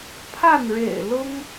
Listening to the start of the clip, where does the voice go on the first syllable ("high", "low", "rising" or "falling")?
falling